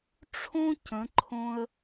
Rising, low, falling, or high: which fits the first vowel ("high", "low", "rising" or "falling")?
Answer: high